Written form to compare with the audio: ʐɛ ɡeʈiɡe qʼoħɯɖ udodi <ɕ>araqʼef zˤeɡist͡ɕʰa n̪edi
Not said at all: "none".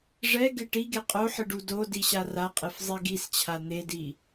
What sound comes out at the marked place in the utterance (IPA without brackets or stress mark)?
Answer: ɕ